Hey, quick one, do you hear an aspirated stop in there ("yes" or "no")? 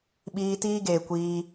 no